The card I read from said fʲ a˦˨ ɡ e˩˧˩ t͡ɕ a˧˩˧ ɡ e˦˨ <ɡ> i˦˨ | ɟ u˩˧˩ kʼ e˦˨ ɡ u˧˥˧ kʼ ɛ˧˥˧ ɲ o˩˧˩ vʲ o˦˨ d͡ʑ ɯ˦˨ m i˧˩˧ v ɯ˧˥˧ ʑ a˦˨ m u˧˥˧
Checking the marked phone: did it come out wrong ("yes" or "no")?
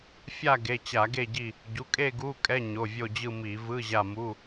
yes